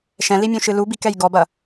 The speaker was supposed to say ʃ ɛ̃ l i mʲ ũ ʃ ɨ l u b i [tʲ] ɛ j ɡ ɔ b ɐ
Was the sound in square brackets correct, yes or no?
no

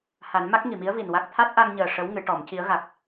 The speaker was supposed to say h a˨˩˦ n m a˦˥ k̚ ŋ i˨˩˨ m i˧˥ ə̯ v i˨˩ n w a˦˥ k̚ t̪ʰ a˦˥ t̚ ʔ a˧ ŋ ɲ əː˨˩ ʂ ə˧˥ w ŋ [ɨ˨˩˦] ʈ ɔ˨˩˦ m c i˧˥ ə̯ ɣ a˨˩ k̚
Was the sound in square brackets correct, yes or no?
yes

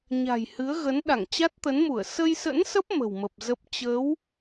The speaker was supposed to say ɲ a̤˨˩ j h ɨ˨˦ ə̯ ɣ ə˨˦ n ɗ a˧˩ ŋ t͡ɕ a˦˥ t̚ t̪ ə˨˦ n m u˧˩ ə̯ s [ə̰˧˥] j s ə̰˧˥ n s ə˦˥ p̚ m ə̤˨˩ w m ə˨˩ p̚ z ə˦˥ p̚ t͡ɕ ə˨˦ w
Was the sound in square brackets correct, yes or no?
no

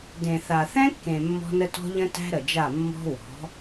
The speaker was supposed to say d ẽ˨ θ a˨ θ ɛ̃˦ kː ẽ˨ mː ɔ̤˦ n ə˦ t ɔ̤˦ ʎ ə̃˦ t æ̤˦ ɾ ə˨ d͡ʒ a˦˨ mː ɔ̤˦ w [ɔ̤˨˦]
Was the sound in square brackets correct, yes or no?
yes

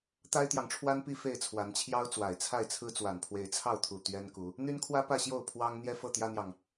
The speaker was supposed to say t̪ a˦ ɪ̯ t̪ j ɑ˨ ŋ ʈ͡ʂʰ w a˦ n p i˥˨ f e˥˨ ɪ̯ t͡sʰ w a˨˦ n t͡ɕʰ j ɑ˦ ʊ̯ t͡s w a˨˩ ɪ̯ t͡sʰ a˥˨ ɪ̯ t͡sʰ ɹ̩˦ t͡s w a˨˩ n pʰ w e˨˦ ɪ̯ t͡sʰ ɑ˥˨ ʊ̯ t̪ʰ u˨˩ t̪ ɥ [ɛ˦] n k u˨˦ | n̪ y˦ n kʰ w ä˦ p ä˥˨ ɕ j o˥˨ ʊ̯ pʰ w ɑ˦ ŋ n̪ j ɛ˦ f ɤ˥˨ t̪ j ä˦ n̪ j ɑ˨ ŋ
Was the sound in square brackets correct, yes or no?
yes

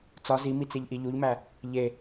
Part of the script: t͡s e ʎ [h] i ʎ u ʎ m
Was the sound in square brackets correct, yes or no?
no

